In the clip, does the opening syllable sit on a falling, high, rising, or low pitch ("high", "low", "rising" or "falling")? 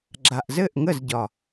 low